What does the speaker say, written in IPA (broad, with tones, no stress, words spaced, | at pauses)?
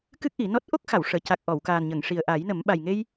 kɨ˦˥k̚ʔi˨˩˦ nɔ˦˥t̚ ʔo˦˥k̚xa˨˩˨w ʂəː˨˩˨ca˨˩k̚ ʔɔ˨˩˨wkaː˨˩n ɲə˨˩˨ŋʂi˨˩ə̯ʔa˨˩˦jnə˨˩˦m ɓa˨˩jŋe˧j